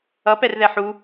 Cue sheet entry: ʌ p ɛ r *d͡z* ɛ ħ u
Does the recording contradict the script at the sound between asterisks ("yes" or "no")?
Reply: yes